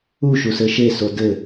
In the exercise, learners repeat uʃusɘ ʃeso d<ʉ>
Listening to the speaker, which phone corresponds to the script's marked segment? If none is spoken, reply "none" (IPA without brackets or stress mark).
ɘ